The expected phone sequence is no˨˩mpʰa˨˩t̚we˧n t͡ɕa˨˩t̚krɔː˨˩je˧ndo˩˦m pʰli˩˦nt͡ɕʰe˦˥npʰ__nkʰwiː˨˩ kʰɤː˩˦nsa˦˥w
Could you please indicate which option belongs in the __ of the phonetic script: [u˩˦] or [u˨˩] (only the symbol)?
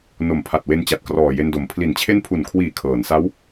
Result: u˨˩